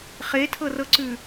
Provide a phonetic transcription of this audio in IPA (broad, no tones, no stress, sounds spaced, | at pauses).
χ e tʰ ɤ r ɤ ǀ ʉ